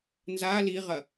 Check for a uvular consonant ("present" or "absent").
present